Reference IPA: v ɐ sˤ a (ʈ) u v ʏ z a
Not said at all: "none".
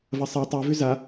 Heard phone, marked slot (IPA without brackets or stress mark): tˤ